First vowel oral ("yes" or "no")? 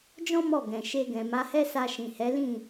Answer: no